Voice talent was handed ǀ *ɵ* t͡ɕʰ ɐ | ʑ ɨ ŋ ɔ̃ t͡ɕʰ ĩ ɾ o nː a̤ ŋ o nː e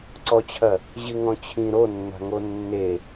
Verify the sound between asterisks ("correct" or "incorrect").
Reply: incorrect